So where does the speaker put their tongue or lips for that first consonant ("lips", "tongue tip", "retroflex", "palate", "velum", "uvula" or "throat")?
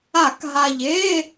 velum